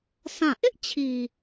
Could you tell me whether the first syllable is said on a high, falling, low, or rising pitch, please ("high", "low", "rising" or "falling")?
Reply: falling